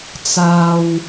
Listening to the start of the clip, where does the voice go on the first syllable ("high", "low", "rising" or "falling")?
low